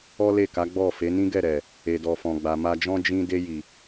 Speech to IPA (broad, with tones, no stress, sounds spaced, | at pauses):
ɔ˦ l e˦˨ k a˨˦ ɡ͡b ɔ˦˨ f e˨˦ n ĩ˦ ɡ ɛ˦˨ ɾ ɛ˨ | e˨ d ɔ˨ f ɔ̃˨ ɡ͡b a˨ m a˧ d͡ʒ ɔ̃˦ d͡ʒ ĩ˦ d e˧ j i˨